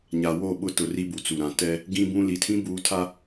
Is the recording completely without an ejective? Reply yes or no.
yes